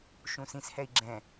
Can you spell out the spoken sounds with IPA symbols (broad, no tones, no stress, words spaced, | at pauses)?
ʃũsĩshɛi̯ ɡ͡ǁɛ̃